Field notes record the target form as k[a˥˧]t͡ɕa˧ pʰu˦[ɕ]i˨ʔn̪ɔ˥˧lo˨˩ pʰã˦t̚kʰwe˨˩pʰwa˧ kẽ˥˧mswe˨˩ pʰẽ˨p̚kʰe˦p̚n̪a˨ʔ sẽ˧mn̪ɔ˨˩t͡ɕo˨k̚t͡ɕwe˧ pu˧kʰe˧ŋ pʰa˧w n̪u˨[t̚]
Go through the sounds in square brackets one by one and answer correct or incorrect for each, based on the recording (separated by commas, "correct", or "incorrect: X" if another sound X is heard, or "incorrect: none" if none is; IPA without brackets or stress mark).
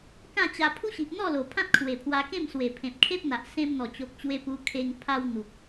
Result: incorrect: ã˥˧, correct, incorrect: k̚